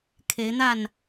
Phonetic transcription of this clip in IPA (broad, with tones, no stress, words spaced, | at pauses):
kʰe˨˦ɪ̯n̪a˥˨n